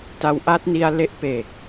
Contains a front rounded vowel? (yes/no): no